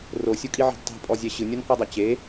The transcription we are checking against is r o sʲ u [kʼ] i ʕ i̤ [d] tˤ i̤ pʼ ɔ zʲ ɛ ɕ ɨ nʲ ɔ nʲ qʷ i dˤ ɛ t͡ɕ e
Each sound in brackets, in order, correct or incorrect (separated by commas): correct, correct